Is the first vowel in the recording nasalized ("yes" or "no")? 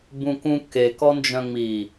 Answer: yes